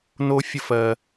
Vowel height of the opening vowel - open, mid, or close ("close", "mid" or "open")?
mid